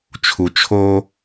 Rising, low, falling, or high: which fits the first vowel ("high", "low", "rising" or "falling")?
low